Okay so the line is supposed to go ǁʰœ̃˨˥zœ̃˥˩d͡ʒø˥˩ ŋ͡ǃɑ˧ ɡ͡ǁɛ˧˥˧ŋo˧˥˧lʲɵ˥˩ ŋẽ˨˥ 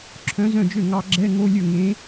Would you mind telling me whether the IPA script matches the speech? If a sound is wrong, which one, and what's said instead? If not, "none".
ŋ͡ǃ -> ŋ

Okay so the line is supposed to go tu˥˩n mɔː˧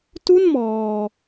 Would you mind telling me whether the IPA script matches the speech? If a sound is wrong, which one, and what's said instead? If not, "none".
none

